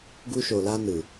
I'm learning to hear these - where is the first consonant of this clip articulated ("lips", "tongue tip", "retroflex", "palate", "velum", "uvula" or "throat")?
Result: velum